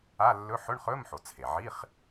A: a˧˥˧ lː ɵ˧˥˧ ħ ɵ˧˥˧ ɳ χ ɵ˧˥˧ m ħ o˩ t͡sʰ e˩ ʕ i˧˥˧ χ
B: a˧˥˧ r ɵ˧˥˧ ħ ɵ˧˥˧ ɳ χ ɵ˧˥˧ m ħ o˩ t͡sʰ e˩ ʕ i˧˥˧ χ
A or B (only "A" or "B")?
A